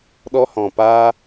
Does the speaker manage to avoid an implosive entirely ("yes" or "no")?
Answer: no